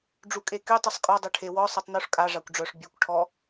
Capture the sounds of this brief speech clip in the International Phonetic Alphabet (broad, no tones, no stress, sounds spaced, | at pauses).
ɖ͡ʐ u kʼ e k y tˤ y sˤ kʼ ɔ dˤ ø ʈʰ e w ɔ sˤ œ tˤ n u ʂ kʼ a ʐ a kʷ ɖ͡ʐ œ ʂ bʲ ø kʷ ʈʰ ɔ